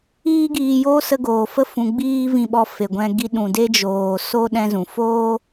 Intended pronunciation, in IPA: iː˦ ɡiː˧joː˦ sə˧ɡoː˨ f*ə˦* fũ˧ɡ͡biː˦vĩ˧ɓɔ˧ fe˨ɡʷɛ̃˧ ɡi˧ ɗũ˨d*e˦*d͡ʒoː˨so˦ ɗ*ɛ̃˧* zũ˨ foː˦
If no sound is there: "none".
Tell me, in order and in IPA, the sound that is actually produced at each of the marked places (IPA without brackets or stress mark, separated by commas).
ə˦, e˦, ɛ̃˧